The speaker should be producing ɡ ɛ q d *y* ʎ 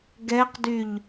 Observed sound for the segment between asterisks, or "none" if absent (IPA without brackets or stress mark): y